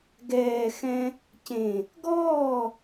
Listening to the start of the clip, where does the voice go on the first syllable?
low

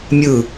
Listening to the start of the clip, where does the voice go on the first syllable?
falling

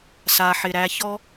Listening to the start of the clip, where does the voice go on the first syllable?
low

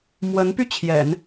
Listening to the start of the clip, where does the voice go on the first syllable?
rising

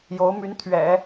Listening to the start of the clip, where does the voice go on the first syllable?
rising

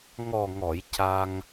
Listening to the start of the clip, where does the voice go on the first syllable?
low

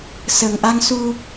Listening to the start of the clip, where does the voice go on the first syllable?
low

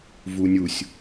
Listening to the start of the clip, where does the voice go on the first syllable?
low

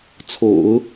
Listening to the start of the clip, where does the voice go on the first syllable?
low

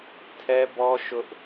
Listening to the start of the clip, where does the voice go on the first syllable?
high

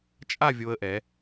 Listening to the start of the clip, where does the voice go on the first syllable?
falling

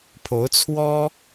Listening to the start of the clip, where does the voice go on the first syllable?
rising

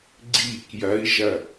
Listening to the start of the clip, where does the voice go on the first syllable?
falling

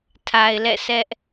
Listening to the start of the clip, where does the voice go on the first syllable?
low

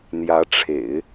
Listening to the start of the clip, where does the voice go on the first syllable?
rising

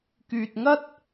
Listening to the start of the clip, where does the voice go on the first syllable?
low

